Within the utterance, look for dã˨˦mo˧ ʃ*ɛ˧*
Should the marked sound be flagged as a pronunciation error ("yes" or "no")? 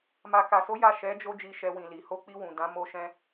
yes